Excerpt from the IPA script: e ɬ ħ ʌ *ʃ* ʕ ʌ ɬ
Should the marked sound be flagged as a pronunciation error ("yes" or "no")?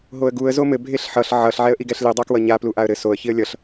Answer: yes